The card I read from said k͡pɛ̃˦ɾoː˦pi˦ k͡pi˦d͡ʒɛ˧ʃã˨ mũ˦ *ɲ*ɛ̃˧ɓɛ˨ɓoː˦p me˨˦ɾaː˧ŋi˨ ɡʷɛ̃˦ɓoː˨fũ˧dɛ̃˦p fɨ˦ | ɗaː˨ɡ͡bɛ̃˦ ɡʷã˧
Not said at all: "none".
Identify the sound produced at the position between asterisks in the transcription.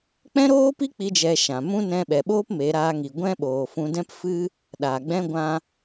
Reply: n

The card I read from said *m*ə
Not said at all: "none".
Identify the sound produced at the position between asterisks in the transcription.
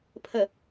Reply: pʰ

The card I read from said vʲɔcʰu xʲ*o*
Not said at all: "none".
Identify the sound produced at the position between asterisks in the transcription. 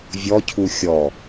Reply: ɔ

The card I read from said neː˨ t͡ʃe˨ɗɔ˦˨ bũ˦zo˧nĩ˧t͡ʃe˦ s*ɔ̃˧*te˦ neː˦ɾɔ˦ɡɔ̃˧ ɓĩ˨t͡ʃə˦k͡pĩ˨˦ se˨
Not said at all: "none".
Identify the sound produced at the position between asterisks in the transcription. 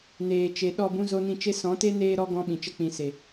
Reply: ɔ̃˨˦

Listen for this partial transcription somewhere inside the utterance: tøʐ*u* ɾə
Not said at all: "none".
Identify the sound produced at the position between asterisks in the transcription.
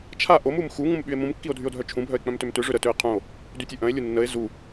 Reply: ø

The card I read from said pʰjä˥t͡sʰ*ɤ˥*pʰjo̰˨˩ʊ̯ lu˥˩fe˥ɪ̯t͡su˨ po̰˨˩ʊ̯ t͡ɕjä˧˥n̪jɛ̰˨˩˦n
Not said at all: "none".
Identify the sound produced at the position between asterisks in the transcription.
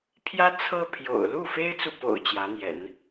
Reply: ɤ˥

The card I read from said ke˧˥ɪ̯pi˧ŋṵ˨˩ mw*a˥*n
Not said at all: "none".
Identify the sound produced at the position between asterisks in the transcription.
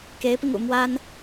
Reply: a˥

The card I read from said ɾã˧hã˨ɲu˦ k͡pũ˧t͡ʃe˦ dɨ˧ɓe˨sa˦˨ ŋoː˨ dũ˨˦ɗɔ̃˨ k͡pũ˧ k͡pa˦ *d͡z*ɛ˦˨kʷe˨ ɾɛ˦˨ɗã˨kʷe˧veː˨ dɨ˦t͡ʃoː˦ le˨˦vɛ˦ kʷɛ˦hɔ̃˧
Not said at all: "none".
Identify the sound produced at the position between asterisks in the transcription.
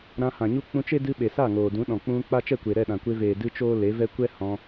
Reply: t͡ʃ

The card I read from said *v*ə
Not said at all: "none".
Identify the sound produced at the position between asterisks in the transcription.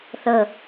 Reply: θ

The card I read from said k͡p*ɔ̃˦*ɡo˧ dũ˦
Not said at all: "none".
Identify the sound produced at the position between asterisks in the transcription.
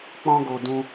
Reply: ɔ̃˦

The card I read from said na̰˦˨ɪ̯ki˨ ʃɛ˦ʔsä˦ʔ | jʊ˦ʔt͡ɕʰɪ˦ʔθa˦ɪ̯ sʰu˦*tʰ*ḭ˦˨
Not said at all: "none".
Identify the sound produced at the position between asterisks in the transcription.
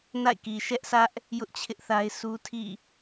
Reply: tʰ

